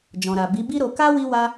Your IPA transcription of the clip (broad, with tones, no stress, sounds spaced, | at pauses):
d͡ʒ ɔ̃˨ ɾ a˨ b i˨˦ b i˦ ɾ o˧ k a˦ w i˦ w a˦